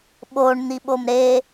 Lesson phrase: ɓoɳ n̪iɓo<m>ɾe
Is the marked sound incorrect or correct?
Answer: correct